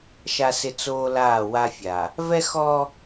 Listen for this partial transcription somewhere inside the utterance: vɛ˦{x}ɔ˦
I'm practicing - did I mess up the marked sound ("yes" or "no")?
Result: no